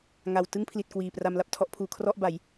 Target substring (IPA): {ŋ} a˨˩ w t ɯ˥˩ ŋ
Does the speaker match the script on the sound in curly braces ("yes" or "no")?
yes